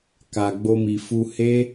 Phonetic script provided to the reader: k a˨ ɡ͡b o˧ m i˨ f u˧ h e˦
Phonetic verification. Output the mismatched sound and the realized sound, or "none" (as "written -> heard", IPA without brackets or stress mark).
none